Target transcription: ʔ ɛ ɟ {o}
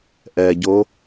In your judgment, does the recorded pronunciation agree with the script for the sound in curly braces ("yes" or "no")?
yes